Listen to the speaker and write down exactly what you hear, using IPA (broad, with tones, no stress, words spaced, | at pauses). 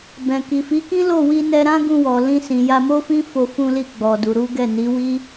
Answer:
bɛ̃˨ki˨fi˨˦ kĩ˦lo˦˨wi˧ nɛ˧ɾã˦ ɡũ˧wɔ˨lĩ˧ sĩ˨ja˧mo˦fĩ˦ fo˧fũ˧li˧ ɡ͡bɔ˨du˨ɾu˨˦ɡɛ˦˨ ni˨˦wi˦